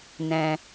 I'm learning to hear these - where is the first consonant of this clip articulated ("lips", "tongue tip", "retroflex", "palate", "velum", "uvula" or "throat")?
tongue tip